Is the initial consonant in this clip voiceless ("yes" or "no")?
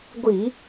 no